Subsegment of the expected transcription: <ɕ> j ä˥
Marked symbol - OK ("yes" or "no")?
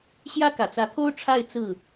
yes